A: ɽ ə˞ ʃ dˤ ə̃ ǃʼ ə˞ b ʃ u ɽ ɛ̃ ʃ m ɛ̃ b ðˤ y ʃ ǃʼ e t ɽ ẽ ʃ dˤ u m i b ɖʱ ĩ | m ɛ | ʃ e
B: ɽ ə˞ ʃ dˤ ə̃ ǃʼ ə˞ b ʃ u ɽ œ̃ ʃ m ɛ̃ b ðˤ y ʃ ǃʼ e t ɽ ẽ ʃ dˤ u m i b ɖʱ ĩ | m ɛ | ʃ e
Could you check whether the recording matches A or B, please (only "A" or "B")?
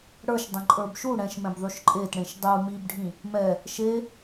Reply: A